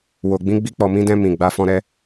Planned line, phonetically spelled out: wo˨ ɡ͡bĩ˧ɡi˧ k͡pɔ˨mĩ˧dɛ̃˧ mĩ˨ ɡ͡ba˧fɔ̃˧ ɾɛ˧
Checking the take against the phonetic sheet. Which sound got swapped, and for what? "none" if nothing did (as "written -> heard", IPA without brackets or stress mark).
ɡ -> ɡ͡b